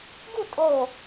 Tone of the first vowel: falling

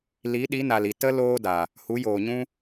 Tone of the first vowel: rising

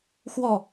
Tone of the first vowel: falling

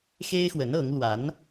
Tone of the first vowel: high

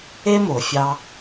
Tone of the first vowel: high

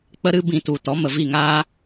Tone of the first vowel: high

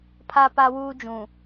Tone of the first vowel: high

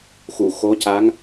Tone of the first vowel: low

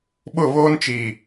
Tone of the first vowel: falling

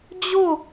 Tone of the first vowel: falling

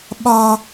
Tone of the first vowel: high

